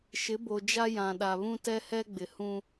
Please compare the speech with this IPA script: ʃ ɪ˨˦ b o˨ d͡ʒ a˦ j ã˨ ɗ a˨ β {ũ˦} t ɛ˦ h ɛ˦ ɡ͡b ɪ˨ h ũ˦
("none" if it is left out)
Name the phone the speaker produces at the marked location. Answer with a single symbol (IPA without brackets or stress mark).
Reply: ũ˦